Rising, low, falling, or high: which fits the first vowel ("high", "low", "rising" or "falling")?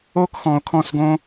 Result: high